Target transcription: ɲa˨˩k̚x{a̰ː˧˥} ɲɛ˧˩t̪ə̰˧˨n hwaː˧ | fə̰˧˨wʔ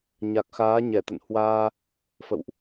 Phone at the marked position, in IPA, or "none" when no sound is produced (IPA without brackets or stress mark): aː˨˦